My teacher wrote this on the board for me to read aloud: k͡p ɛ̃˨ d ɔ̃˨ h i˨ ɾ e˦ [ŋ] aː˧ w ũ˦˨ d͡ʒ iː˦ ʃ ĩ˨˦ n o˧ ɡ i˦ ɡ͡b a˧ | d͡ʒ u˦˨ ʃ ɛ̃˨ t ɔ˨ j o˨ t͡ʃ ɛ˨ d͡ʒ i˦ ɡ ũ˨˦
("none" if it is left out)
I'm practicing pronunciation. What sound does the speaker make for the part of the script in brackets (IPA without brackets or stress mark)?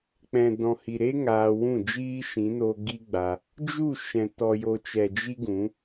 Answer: ŋ